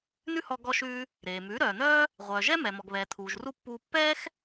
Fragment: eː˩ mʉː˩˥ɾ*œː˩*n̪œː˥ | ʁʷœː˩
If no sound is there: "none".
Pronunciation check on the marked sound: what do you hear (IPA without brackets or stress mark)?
œː˩